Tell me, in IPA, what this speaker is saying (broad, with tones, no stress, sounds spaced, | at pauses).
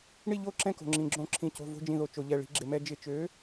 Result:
ɳ i˦˨ ʎ o˦˨ ǁ ɛ̃˦˨ k o̤˩ ŋ͡ǁ ĩ˩ ɡ͡ǁ õ˧˩˧ ǁʰ ĩ˩˧˩ c o̤˩˧˩ v o̤˦˨ d͡ʒ ĩ˦˨ ð o˧˩˧ t͡ʃ o˧˩˧ ʎ ɛ˩˧˩ ɭ i̤˦˨ ɡ͡ǁ ɪ˧˩˧ m ɛ˦ d͡ʒ ɪ˧˩˧ t͡ʃ ø˨˥